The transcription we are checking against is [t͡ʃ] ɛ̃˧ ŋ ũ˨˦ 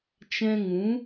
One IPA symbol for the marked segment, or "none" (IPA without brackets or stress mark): t͡ʃ